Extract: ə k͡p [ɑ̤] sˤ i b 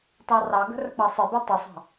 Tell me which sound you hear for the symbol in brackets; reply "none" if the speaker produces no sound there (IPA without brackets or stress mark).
ɑ